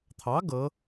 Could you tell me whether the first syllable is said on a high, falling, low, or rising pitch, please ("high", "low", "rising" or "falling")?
rising